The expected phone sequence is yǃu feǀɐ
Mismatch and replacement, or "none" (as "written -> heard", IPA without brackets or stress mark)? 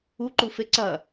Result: y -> u